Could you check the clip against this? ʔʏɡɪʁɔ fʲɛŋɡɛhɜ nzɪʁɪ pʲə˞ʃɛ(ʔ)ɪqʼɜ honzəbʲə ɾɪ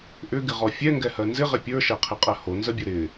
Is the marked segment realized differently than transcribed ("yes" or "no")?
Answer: yes